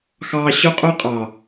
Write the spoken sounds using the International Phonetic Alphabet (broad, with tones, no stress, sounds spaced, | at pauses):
x ɑː˧ ɕ ʊ˦ qʼ ʊː˦ qʼ ɑ˨